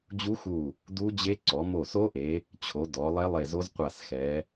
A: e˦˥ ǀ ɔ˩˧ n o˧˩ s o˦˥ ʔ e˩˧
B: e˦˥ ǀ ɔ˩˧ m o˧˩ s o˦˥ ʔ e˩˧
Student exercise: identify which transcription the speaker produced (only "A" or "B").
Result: B